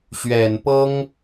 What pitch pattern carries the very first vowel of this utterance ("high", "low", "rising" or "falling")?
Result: low